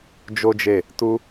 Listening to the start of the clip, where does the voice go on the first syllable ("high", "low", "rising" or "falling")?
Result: high